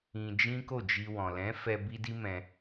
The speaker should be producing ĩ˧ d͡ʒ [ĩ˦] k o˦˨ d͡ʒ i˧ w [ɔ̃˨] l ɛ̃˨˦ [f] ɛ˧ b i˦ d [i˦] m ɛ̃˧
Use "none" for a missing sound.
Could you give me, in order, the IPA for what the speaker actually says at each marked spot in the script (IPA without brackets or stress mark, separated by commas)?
ĩ˦, ɔ̃˨, f, i˦